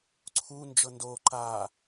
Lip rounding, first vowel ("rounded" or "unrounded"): rounded